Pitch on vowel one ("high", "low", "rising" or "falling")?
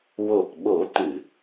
low